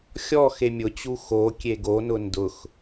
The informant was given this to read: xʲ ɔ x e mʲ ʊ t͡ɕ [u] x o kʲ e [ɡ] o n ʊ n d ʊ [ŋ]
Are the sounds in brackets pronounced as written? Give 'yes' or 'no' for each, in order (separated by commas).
yes, yes, no